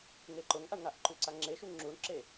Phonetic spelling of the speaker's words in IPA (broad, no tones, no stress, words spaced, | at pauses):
ŋeǃʊŋʔaɳŋaʔ ǃʉǀaŋ͡ǁeʃu ŋ͡ǁuɳǁe